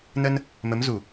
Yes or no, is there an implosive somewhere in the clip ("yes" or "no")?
no